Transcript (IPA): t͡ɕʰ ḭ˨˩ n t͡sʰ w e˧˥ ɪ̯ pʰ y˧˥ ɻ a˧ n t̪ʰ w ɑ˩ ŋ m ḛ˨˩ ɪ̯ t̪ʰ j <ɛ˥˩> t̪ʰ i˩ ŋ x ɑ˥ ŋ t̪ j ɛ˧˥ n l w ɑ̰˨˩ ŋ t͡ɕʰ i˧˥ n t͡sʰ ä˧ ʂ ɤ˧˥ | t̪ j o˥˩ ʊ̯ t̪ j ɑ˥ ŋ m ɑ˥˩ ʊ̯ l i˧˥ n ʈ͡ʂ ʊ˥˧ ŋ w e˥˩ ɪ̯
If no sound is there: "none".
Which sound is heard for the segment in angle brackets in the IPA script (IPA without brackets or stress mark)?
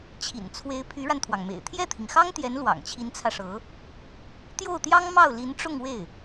ɛ˥˩